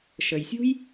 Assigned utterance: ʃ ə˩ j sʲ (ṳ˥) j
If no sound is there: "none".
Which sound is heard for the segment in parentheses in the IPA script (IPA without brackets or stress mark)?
ṳ˥